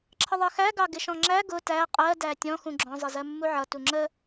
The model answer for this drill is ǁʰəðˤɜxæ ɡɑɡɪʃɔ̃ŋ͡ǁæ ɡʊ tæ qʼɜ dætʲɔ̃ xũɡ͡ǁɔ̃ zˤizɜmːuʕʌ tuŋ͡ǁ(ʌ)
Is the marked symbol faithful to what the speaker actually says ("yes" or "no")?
no